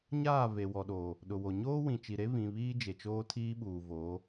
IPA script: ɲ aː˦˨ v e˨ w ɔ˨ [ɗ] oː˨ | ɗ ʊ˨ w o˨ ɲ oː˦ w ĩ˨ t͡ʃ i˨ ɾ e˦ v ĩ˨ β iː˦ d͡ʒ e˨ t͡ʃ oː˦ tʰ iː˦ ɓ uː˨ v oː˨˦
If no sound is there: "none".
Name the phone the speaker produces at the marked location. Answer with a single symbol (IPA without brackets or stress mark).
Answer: ɗ